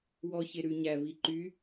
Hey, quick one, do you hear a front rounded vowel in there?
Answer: yes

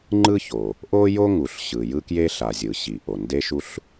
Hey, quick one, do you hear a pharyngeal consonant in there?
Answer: no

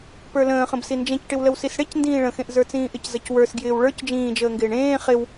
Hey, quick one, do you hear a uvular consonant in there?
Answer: yes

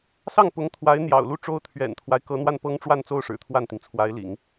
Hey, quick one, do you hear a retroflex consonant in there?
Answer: yes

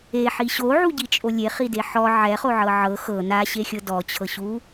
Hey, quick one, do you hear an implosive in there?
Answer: no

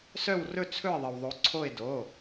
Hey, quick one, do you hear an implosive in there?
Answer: no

